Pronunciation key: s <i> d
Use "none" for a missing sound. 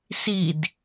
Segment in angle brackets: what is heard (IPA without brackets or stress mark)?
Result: i